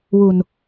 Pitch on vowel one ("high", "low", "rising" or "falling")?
low